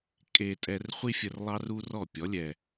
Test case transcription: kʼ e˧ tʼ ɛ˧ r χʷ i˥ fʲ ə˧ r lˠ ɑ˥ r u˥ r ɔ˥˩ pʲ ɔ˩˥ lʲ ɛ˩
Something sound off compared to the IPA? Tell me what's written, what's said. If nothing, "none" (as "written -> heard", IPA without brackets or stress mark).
none